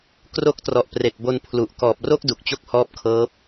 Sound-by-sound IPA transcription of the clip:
k r o˦˥ k̚ t r ɔ˨˩ ʔ p r e˨˩ k̚ b o˧ n pʰ l u˨˩ ʔ k ɔː˨˩ p̚ r o˥˩ k̚ d u˨˩ k̚ t͡ɕ o˥˩ k̚ h ɔː˦˥ p̚ kʰ ɤː˦˥ p̚

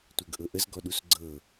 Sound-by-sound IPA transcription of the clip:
tʷ ɤ ɡ ʔ ɤ ʔ ə z ɡ ɔ ɗ u s ɡ͡ǀ ɤ

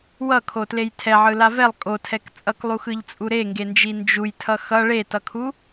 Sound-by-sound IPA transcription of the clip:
w ʌ kʰ o t l e j tʰ ɛ ʕ ɯ l a v ɛ lˠ kʼ o tʰ ɛ k t͡sʼ ʌ k lˠ u x ɯ ʎ t͡sʼ u ɾ e ŋ ɡ e n d͡ʒ i n d͡ʒ u j tʰ ʌ x ʌ ɭ e t ʌ kʰ u

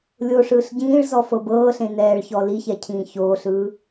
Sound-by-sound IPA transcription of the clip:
lʲ o ʂ ɯː ɬ ɟ ĩː ɭ z ɔ f ɤ b ɤː ɬ ẽ n ɛː ɭ ç ɔ l i ç ɛ cʰ ĩː ç oː ɬ ɯː

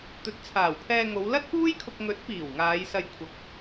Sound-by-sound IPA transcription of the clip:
t̪ ɵ˨ t̚ t͡sʰ aː˨˩ w pʰ ɛː˧ ŋ o˨˧ w l ɐ˥ t̚ p uː˥ j kʰ ʊ˧ k̚ ŋ ɵ˨˥ t̚ p iː˨˩ w ŋ aː˨˧ j s ɐ˧ j kʷʰ ɐ˨ k̚

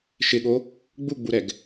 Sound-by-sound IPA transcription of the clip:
ʃ ɪ ɠ o | ɡ͡b u ɡ͡b u ɾ ɛ ɡ

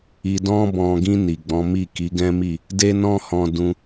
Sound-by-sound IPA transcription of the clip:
i˨ d ɔ̃˧ b ɔ̃˨ ɡ ĩ˧ n i˨ ɡ͡b ɔ̃˨˦ m i˦˨ k i˨˦ ɡ ɛ̃˦ m i˦˨ | d e˦ n ɔ̃˦ h ɔ̃˧ d ũ˧

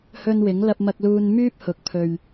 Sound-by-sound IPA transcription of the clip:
h ɵ˧ n w ɪ˨˥ ŋ l ɐ˧ p̚ m ɐ˧ k̚ l uː˧ n m yː˥ p̚ h ʊ˨ k̚ pʰ ɵ˨ ɥ

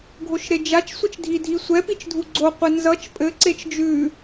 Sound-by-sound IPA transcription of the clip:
ɡʱ o ʃ ɾ e d͡ʒ a t͡ʃ sʷ i t͡ʃ dʱ i dʱ i sʷ ɛ p i t͡ʃ dʱ u ɡ͡ǀ o qʷ ɛ n z ʌ t͡ʃ pʼ ɘ ǀ e t͡ʃ d͡ʒ ʉ

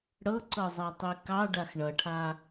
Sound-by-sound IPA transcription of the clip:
ɽ ɤ ǀ ɤ zˤ a tˤ i k ɑ ɖ a x ɳ ʌ ʈʰ a

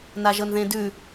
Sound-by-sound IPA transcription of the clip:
n a ʒ ɤ n ð ẽ d ʉ

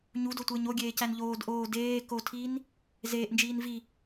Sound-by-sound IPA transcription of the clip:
ɲ u d o tʷ eː ɲ o ɡʲ eː c æ n ʎ oː d ʔ oː d eː k o tʰ iː n | z eː ʔ n d͡ʒ iː n v i

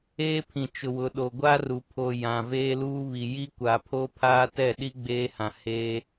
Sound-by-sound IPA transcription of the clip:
eː˦ pʰ ĩ˨ t͡ʃ ʊ˨ w ʊ˨ ɗ o˨ ɡʷ a˦ r u˨ pʰ o˨ j ã˨ v eː˦ l uː˦ β i˨ j i˦ kʷ a˨ pʰ o˦ pʰ aː˦ t ɛ˦˨ ɗ i˦ ɡ͡b eː˦ h ã˨ h e˦

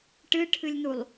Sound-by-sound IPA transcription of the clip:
ʈ ɨ ʈʰ ɨ lʲ n u lˠ

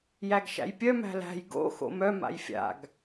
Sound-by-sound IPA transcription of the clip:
j æ ɡ ʃ æ̰ j pʲ œ m æ̤ l æ̤ j ɡ o̰ x o̰ m œ m a̰ j fʲ a̰ ɡ

